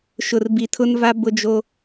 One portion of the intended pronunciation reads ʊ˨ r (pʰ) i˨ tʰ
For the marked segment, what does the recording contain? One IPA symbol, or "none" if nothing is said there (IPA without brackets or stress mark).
b